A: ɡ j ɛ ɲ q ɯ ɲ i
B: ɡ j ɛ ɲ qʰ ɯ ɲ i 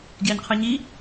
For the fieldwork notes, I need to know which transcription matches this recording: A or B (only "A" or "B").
B